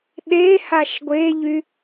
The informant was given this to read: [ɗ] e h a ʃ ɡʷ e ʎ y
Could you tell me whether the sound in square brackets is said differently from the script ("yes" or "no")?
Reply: no